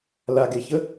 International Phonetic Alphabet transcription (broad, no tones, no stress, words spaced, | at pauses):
laɡeçə